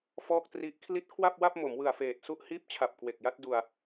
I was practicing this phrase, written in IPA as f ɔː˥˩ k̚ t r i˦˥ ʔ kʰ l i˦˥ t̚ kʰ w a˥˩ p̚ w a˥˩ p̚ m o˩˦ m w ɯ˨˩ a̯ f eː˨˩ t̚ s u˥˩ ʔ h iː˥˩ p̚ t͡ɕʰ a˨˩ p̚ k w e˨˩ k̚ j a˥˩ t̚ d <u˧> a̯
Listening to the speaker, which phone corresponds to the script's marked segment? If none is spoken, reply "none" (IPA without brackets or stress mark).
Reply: u˧